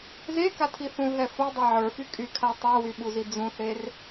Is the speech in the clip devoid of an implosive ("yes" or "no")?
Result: no